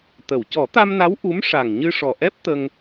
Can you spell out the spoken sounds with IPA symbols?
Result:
t̪ə˨˩˨w cɔ˨˩˦t̪a˧mna˧˥w ʔu˧˥m ʂa˨˩ŋɲɨ˧ʂɔ˨˩ ʔɛ˦˥p̚ t̪ə˧ŋ

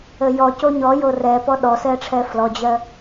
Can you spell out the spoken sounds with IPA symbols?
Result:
əjɔ coɲɔ jorɛ pɔɗɔsɛ ʈ͡ʂʰɛflɔd͡ʑɜ

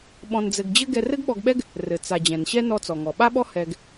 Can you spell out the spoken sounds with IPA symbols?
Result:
ɓɔ̃˧nd͡zɘ˧ɡ d͡ʑɘ˥ ɡɛ˧rɘ˥ɡɓɔ˧ɡɓɛ˥ɡ | rɘ˩ t͡sa˩ d͡ʑɛ̃˩nɕɛ˥ nɔ˧t͡sɔ˩ŋɔ˩ ɓa˥ɓɔ˥ hɛ˧ɡ

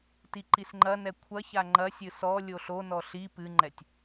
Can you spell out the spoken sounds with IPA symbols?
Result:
tiǃisŋ͡ǃɐnɛ kʷʰɐça ŋ͡ǃɐsʲɨ sɔ lʲoɬonɔ ɬi pɨŋ͡ǃɛtʲ

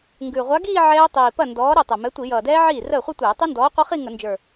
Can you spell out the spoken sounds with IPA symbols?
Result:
ŋɡʉ˨˩ ʁʷa˨˥ɡiː˥˧ ʕɛː˦˥ tˤiː˨˩pɐ˥˩ ndɔː˨˥ ɾɛ˥˩tˤɛ˨˩mɛ˨˥ tʷi˧˩˧jʌː˨˩dɛː˦˥ ʕiː˥˩rəː˥˩χʷɐ˥˧tʷɛː˧˩˧ tˤʉ˦˥ndɔː˨˥qʷɐ˦˥χi˥˧ ŋə˧˩˧nd͡ʒə˞˨˩

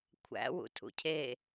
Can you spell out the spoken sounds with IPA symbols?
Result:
kʷʰæ̰ wṵtʰṵcʰe

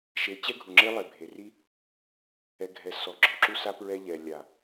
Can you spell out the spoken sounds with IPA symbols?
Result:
ʃe˨˦ t͡ɕɛ˦ɡʱu˨ŋ͡ǁe˦lˠe˨ bʱe˨ri˦ | ɛ˨ ɡʱɛ˨ sɔ˨ ɡ͡ǁɔ˨ǁu˦sa˦ pɹɛ˦ʎɛ˨ lʲa˨

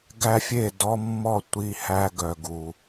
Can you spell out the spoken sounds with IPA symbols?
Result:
ɡæ˧fʲe˧˩dɔ˧mːɔ˧˩ tʷi˧˩hæ˧ ɡœ˩ɡu˩

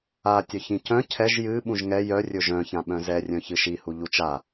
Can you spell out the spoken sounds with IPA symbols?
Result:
a tʲœçĩcœ̃ cʰɛʒ jɨ ɓũʒŋɛ jœ rʲɵʒœ̃çã ɓœ̃zɛ rʲœ̃çɨʃihu ʎut͡ʃa

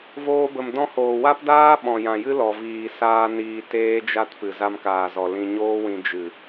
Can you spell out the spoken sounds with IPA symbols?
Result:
voː˧bə˨m dɔ̃˧hoː˨ wa˦pdaː˦ ɓɔ̃˨jã˨jɨ˦lɔ˨ viː˨saː˧ niː˧teː˦d͡ʒa˦tpɨ˨ za˧mkaː˨zɔ˨ lĩ˧ɲoː˦wĩ˧ d͡ʒɨ˨

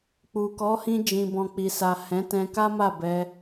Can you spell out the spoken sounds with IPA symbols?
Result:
k͡pu˨kɔ˨˦hĩ˧ d͡ʒĩ˨bɔ̃˨k͡pi˨sa˨ hɛ̃˨˦tɛ̃˧ka˦ma˦˨ bɛ˧

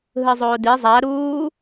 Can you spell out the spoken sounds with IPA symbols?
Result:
ɦɯzˤoːdi zˤa ɾuː

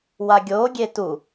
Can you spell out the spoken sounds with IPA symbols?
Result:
waɡʲo ɡʲetu

